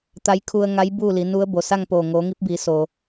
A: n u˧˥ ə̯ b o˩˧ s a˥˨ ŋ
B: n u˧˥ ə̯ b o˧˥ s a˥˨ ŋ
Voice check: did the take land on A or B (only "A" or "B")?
A